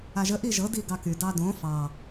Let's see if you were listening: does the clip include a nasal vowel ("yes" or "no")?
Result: yes